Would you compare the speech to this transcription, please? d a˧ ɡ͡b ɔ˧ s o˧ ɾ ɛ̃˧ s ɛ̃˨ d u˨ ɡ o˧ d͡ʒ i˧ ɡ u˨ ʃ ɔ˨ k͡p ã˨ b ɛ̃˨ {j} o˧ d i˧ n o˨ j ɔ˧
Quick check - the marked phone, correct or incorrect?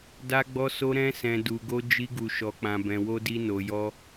incorrect